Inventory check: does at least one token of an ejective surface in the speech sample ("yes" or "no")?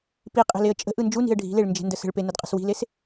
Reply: yes